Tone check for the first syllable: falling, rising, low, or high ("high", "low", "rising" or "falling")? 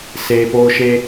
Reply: low